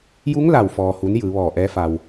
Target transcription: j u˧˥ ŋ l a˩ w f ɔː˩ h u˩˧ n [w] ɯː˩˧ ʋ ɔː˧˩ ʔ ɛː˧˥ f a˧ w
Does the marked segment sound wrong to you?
yes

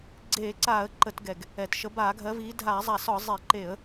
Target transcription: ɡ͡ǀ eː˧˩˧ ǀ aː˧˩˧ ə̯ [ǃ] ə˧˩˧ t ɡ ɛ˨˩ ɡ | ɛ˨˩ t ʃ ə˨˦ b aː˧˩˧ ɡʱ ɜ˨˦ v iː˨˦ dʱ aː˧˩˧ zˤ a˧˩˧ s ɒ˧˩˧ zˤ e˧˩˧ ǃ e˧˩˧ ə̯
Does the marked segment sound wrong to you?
no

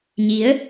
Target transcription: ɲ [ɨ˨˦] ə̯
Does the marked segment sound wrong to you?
yes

